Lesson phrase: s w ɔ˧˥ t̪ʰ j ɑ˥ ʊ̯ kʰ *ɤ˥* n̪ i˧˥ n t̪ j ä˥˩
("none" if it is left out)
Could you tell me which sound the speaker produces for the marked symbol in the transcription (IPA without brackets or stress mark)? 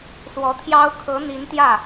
ɤ˧˥